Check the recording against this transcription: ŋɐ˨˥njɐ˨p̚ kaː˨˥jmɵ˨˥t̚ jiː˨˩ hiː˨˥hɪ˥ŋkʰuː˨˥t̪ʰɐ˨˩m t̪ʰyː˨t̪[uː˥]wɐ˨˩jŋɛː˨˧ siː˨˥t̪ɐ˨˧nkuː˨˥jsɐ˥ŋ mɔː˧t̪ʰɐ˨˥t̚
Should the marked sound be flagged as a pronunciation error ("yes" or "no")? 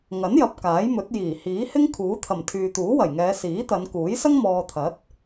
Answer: yes